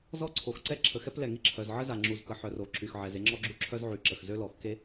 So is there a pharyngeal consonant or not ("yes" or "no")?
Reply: yes